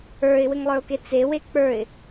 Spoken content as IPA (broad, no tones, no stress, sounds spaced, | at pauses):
ə˞ ɪ̯ w ɘ ŋ lˠ ə˞ ʊ̯ k e t͡s e w e k͡p ə˞ ɪ̯